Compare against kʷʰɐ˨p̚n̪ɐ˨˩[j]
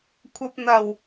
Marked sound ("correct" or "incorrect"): incorrect